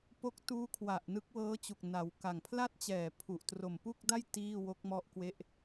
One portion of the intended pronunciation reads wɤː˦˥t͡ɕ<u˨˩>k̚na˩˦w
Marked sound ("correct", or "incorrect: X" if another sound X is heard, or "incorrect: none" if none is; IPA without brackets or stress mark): correct